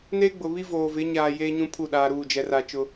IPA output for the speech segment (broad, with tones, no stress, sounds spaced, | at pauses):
n eː˦ ɡ͡b ʊ˨ β i˦ v oː˨ v ɪ˨˦ ɲ aː˨ j eː˦ ɲ ũ˦ pʰ u˦˨ ɗ aː˨ ɾ uː˦˨ d͡ʒ ɛ˨ r a˨ t͡ʃ ʊ˦